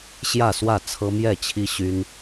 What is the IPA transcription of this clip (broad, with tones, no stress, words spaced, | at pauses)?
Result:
ɕjä˥˨swä˥˨t͡sʰɤ˦ mjɛ˥˨t͡ɕʰi˦ɕy˦n